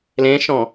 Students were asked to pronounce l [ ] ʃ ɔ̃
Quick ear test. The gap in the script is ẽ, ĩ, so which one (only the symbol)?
ẽ